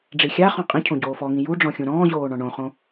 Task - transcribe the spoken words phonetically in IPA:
ɖ͡ʐixʲaχɔ̃ qʼĩcʰõ ɟoːfɔŋĩ juɖ͡ʐɔ̃ xʲũɾɔ̃ːʑoː ɳɔ̃ɳõχõ

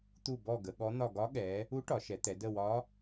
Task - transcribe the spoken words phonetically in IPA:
t̪u˦˨bɔ˦˨ ɡə˩˧ɠɔ˧˥n̪ɒ˦˨ ɡɒ˧˥ɠɛ˩˧ | u˧˥ ʈɒ˩˧ʃɛ˩˧t̪ɛ˩˧ də˦˨wɒ˧˥

